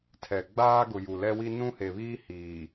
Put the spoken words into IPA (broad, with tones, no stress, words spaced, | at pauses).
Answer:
tʰɛ˨ ɡ͡baː˦ɡʊ˨ ju˨lɛ˦wi˦ nũ˦he˨βiː˦ hiː˨